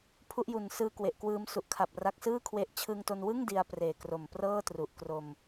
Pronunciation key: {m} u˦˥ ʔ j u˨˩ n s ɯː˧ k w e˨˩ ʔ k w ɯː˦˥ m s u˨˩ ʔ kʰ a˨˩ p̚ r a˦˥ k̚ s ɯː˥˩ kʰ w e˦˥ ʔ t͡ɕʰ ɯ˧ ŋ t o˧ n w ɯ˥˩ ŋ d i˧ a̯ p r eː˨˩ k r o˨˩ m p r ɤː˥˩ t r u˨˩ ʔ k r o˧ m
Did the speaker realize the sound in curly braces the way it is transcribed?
no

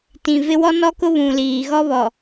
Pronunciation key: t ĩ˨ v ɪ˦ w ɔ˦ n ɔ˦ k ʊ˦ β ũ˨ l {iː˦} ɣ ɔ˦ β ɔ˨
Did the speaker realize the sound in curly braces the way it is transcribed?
no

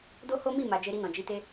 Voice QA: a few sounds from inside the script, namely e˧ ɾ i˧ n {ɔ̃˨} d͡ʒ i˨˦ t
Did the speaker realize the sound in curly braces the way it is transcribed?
yes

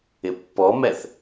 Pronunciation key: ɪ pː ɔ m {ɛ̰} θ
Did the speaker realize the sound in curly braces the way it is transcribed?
no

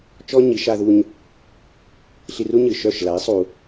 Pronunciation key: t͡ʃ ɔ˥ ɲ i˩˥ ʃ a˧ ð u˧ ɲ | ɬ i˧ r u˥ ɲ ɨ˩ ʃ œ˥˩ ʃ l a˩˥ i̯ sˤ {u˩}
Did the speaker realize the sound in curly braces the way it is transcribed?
yes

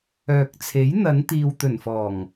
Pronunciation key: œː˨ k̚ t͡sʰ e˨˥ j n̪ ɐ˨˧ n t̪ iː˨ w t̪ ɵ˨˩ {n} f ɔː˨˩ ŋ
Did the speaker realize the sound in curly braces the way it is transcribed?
yes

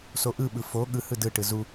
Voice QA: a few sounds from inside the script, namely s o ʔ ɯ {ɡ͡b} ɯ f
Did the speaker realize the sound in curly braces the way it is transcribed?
no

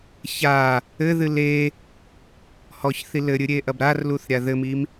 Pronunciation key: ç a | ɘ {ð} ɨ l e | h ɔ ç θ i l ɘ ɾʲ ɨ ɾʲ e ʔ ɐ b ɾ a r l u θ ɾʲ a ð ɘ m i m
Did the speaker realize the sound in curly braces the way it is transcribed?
yes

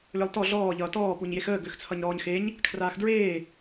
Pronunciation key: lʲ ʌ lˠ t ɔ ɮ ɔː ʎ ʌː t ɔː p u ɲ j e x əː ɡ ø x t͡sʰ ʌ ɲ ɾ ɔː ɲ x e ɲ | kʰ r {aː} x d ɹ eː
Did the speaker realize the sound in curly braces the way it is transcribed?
yes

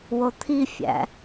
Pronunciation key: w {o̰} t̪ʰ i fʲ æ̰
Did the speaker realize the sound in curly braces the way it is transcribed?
no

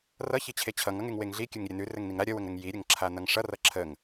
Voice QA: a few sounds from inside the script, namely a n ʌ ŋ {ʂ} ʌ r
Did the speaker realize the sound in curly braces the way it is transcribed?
yes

